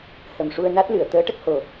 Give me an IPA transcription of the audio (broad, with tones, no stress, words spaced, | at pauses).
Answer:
hə˨˩mʂu˧ə̯na˦˥t̚lɨ˨˩˨ə̯ t̪əː˧˥ ʈə˦˥k̚ho˨˩